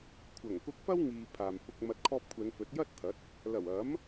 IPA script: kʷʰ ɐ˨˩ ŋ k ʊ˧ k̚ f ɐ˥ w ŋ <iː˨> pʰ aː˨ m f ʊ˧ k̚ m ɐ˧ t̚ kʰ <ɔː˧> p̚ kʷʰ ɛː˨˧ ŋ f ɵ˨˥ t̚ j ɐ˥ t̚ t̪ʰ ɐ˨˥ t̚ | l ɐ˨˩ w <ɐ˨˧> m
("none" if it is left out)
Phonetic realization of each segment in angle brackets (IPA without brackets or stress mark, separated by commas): iː˨, ɔː˧, ɐ˨˥